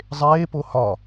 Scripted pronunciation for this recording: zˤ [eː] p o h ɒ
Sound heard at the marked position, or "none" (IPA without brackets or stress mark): eː